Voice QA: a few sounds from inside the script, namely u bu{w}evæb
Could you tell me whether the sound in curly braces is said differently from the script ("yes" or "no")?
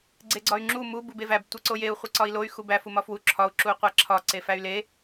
yes